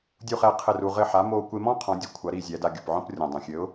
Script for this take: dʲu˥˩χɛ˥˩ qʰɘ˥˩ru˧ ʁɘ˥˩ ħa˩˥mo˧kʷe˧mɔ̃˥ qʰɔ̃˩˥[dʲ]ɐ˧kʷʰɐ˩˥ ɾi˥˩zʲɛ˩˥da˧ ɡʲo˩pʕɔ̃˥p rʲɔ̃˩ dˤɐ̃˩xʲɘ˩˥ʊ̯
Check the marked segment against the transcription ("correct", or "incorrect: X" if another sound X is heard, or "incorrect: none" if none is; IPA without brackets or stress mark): correct